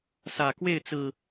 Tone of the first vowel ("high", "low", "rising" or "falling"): low